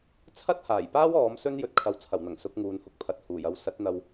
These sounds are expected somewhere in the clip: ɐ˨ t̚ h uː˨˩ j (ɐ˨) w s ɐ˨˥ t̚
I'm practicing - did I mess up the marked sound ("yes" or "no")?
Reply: yes